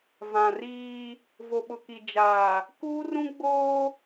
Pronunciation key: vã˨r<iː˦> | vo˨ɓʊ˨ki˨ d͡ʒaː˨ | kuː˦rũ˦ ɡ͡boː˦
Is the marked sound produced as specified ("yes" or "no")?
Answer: yes